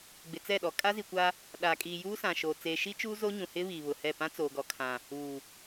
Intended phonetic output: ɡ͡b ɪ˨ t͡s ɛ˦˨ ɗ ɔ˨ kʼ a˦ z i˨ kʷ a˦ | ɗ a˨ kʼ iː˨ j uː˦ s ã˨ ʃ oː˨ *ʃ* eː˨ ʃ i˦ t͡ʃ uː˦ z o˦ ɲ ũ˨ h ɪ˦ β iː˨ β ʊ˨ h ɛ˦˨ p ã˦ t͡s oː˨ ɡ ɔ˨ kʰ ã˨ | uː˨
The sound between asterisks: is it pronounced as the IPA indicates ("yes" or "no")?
no